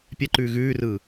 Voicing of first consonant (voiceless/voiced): voiceless